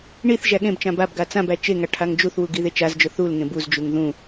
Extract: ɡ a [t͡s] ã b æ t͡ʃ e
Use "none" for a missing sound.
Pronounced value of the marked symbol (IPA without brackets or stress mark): t͡s